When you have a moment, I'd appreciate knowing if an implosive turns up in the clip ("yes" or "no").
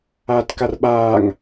yes